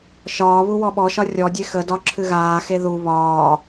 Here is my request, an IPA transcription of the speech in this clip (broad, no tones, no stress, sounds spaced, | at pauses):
ʃ ɒː β u w ɔ ɓ ɔ ʃ ɒ rʲ ɔ dʲ e x ə d ɒ ǁʰ ɨ ɣ aː x e ð u β ɒː